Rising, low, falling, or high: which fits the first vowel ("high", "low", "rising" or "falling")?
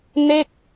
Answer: falling